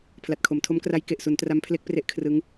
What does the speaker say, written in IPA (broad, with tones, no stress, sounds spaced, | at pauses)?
pʰ l a˨˩ t̚ kʰ o˩˦ m tʰ o˦˥ m k r a˦˥ j k e˨˩ ʔ s u˩˦ n t r a˦˥ m pʰ l e˦˥ k̚ p r e˦˥ ʔ kʰ r ɯ˦˥ ŋ